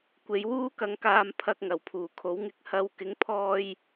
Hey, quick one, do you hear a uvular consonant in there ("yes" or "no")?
no